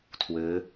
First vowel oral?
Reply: yes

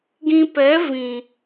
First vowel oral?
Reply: no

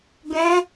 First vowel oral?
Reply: no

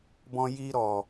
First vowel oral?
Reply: no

